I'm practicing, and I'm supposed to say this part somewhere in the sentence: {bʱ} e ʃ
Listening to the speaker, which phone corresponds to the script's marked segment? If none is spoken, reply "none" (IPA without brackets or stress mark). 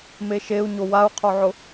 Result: m